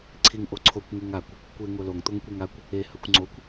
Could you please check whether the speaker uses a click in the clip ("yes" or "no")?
yes